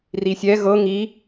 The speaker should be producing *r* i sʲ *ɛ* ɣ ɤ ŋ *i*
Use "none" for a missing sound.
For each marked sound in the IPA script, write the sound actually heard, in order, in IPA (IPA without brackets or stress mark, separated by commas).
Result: r, ɛ, i